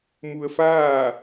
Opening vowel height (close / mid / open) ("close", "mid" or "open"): close